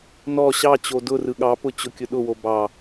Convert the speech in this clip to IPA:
n ɔ ɕ ɑ t͡ɕ o d ʊ r ɯ ɠ ɑ p ʊ t͡ɕ ʊ kʲ ʊ ɗ ʊ w o b ɑ

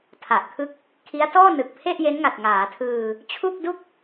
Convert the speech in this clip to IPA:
tʰ a˨˩ ʔ kʰ ɯ˥˩ k̚ | kʰ i˦˥ a̯ t ɔː˥˩ n ɯ˨˩ k̚ pʰ e˥˩ ʔ j e˦˥ n ŋ a˨˩ t̚ ŋ aː˩˦ tʰ ɯː˧ | t͡ɕʰ u˥˩ k̚ d u˥˩ k̚

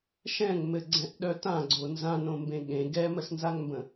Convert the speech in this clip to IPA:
ʃ ɛ̃ ŋ m ɘ ɡ͡ǀ ɛ̃ ʔ ɗ œ t ã ɡ͡ǀ o n z ã n õ m b ẽ ɠ ẽ ɡ ɛ m ə s n z a ŋ m b ə̃

